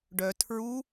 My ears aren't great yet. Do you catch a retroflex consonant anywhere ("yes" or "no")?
yes